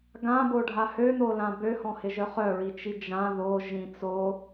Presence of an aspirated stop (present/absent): absent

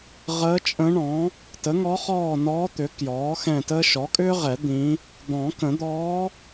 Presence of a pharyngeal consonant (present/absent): absent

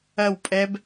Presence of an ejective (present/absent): present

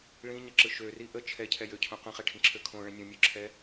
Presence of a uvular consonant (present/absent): present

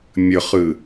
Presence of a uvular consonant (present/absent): present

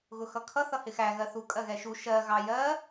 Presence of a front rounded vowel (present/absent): absent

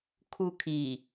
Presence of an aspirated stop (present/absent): present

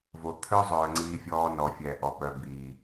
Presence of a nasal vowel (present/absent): absent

